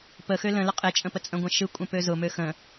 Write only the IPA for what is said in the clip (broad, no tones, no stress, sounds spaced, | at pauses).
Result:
p ə x ø l ə̃ l ə qʼ e t͡ʃʼ ə̃ p ə t͡sʼ ə̃ ɡʷ ə̃ ʃ ɯ kʷʼ ə̃ p ø z ʊ m ø x ə̃